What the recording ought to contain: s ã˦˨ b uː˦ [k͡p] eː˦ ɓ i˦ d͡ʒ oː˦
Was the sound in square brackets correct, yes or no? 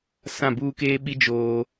no